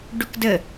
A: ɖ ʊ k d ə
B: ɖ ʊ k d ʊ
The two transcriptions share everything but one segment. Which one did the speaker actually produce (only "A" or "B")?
A